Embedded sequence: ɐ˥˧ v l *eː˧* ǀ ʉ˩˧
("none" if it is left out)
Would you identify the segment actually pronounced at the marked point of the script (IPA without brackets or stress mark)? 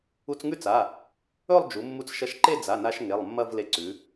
e˧